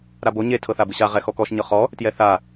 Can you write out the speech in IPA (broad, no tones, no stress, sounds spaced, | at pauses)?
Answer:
ɾ a b o ɲ e tʰ ɤ θ a b ɯ ɕ a ʁ ɛ x ɔ k ɔ ʃ ɲ ɤ χ ɔ | t j ɛ θ a